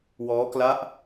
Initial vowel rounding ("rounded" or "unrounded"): rounded